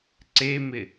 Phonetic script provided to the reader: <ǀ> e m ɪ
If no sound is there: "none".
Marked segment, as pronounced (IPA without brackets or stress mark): ǀ